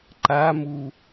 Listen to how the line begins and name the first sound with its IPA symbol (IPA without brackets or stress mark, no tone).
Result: ǃ